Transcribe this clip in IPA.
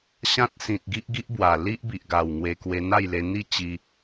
ɕ ã˦ t̚ s ĩ˨ t̚ ɡ i˦ ʔ ɡ i˦ ʔ b w a˨˩ l i˦ ʔ b i˨ ʔ ɡ a˨˩ w ŋ w e˧ k w e˧ n̪ a˥˧ j l e˧ n̪ i˥˧ t͡ɕ i˧

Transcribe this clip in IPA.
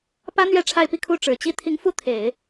p ä˥ n̪ ɥ ɛ˥ ʈ͡ʂʰ a˥˧ ɪ̯ p i˥˧ kʰ u˥˩ ʈ͡ʂ ɻ̩˨˩ t͡ɕ i˥ t̪ʰ i˧˥ ŋ f u˥˩ t̪ʰ e˨˩˦ ɪ̯

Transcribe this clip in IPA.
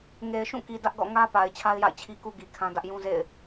ŋ e˨ ɪ̯ ʃ ũ˦˨ k i˨ d ä˦ ʔ ɡ ɔ̰˦˨ ŋ ä˦ p a˨ ɪ̯ t͡ɕʰ a˦ ɪ̯ j a̰˦˨ ɪ̯ t͡ɕʰ i˦ k u˦ ɡ i˨ kʰ ã˦ d ä˦ ʔ j ũ˦ z ḛ˦˨ ɪ̯

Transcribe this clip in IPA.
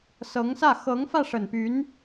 s ɤ˧˥ ŋ s ä˥˩ x ɤ˧˥ ŋ f ä˥˩ ʂ ə˨˩ n p y˧˥ n

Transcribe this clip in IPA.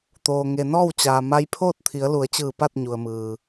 t̪ oː˩ ŋ e˩ n ɔː˥˨ w t͡ɕ aː˩ m a˧ j pʰ oː˥˨ t̚ t̪ʰ i˩˧ ə̯ l u˩˧ ə̯ t͡ɕ ɯː˧˩ p a˥˨ t̚ ɲ u˩ ə̯ m ɯː˩

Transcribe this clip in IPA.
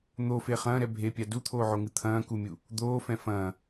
n̪ o f e χ ɐ̃ː ɾ ɛ bʱ e pʲ a d u t̪ʰ oː ʕ o ŋ ɨ t̪ʰ ɐ̃ː k u mʲ u | d̪ oː f ɛ̃ f ɐ̃ː

